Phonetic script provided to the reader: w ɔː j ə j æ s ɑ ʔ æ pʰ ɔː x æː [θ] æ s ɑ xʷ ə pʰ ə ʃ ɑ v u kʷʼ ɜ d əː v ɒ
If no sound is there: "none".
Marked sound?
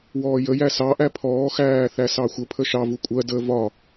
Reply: θ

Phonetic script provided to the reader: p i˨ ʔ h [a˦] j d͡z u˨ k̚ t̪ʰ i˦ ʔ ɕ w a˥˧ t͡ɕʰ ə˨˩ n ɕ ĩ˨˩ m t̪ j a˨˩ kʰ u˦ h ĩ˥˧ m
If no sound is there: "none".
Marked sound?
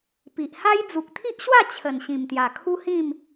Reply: a˦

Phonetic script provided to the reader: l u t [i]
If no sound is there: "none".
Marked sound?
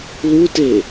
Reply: e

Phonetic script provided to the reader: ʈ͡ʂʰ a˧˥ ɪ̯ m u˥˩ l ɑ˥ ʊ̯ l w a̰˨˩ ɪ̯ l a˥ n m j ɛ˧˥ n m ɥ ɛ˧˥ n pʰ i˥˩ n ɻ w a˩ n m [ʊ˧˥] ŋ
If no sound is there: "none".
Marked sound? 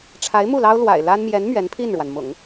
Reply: ʊ̰˨˩˦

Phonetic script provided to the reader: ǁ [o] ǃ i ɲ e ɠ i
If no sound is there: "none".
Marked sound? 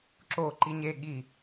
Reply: o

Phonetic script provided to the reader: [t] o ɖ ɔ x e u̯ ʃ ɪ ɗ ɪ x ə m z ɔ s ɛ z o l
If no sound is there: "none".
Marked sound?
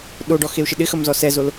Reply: ɗ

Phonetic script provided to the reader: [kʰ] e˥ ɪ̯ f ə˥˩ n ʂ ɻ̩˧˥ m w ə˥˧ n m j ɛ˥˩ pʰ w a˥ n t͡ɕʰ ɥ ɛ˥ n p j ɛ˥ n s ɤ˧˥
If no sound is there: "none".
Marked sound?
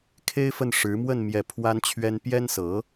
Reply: kʰ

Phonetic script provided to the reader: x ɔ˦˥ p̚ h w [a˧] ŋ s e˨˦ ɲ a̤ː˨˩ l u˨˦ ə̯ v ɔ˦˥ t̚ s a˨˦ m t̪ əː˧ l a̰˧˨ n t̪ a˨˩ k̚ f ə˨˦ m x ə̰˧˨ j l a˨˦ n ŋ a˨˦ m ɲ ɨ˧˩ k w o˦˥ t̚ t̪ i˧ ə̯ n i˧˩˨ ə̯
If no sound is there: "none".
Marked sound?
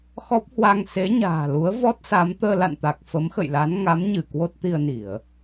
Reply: a˧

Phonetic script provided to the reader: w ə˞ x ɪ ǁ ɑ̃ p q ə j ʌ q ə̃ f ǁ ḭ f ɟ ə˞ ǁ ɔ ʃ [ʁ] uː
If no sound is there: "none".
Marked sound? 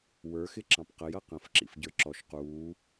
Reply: q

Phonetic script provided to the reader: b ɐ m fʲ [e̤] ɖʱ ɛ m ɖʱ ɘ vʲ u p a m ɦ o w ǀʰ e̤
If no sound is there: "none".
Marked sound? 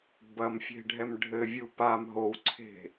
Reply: e̤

